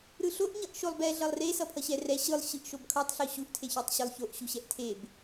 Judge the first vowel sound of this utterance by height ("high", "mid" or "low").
high